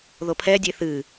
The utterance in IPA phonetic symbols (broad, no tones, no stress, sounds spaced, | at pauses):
ð o pʰ ɛ dʲ e θ ɨ